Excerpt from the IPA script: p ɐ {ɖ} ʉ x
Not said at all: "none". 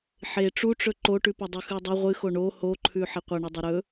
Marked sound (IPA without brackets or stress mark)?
dˤ